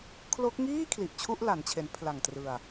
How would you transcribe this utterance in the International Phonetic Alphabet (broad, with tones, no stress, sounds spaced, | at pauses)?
kʰ l o˦˥ k̚ ŋ iː˥˩ kʰ l i˨˩ ʔ t͡ɕʰ u˥˩ ʔ l a˩˦ n t͡ɕʰ e˩˦ n pʰ l a˨˩ ŋ t r ɯ˨˩ a̯